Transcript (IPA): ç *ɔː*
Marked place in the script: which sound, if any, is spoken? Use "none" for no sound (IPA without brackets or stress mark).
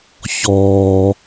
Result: ɔː